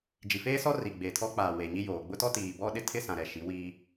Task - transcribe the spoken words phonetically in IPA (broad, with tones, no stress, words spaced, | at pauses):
d͡ʒi˨feː˦sɔ˦ ri˨ɡ͡beː˨tʰɔ˦k͡paː˨ weː˨ɲi˦joː˨ ɡ͡bʊ˦tɔ˦ tiː˨bɔ˦ɗɪ˦tʰɪ˦ sã˨ɾɛ˨ ʃi˨˦wiː˦